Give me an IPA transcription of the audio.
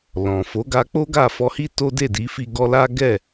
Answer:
l ɔ̃˨ f o˨˦ ɡ a˧ k͡p o˦ ɡ a˦˨ f ɔ˧ h i˦ t o˦ d e˦˨ d i˨˦ f i˧ ɡ ɔ˧ l a˦ ɡ ɛ˦˨

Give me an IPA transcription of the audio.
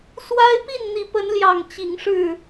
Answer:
s w a˦ ɪ̯ p i˥˨ n n̪ i˨˦ p ə˨˦ n l j ɑ˨˩ ŋ t͡ɕ i˨˦ ŋ ʂ ɻ̩˥˨

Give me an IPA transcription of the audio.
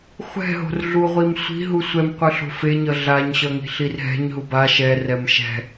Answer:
χʷ ɛ̤ ɦ o̤ r ɮ u ʁʷ i m sʷ i̤ ɦ u sʷ ɛ m qʷ ɯ ɬ o̤ f e ɲ ʌ ɮ a ɲ ɕ ʌ ŋ i̤ ɬ i r ɦ ɛ̤ ɲ ɦ u b a ʃ ɛ r ɛ m ʃ ɛ̤

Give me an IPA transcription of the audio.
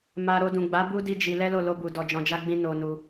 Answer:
m a˨ ɾ o˧ d ũ˨ ɡ͡b a˨˦ b u˦ d i˦ d͡ʒ i˧ l ɛ˦ l o˦˨ l o˧ b u˨ d ɔ˨ d͡ʒ ɔ̃˨ d͡ʒ a˧ ɡ͡b ĩ˧ n o˧ n u˧

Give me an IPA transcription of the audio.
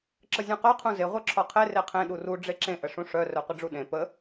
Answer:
ǁ ə zʲ ũ q œ qʰ ũ z e ʁʷ œ ǁʰ ɒ qʰ e r e qʰ ẽ ɗ u r u ɖ͡ʐ e ǁ ẽ ʔ ə ʂ ũ ʂ œ r œ qʷ ə ɖ͡ʐ u ɗ ẽ p ə

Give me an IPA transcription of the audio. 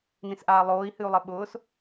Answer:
n ĩ s ʔ aː lˠ oː i̯ h ɨ u̯ lˠ ɪ ɓ ʊː s

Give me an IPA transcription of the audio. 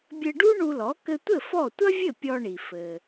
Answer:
bʲ ɘ˧ ɖ u˥ ɳ u˧ l ɔ˩˥ k ɘ˧ tʷ ɘ˥˩ f ɔ˥˩ tʷ ɐ˥ vʲ ɘ˥˩ pʲ ɔ˧ ɳ i˩ f ɘ˩

